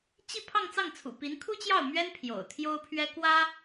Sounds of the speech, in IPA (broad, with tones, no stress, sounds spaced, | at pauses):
t͡ɕ i˥˧ pʰ ɑ˥˧ ŋ t͡s ɑ˥˩ ŋ t͡sʰ ṵ˨˩ p i˧˥ n kʰ u˥ t͡ɕ j ɑ˥˩ ʊ̯ m ɥ ɛ˥ n pʰ j o̰˨˩ ʊ̯ t̪ʰ j o˥ ʊ̯ pʰ ɥ ɛ˥ k w ä˥